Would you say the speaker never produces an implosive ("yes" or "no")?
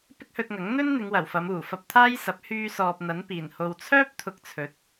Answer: yes